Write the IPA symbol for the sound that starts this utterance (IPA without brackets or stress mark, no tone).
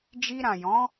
d͡ʒ